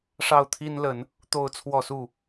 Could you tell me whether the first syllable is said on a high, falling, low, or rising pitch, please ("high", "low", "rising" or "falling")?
falling